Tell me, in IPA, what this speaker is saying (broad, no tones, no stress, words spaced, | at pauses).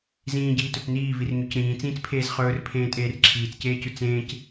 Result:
zĩːɟiːtɵt͡s niːvirɲøc ɾĩːt͡sĩːt͡spʰeːz χɵːrpʰẽːtʼeːr ǁʰiːt͡sceːcʉ t͡sẽːc